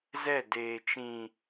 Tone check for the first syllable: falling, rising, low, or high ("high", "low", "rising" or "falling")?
falling